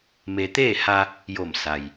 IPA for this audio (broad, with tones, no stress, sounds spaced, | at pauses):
m e˧ t̪ eː˥˨ h a˧ | j o˧˩ m s a˩ j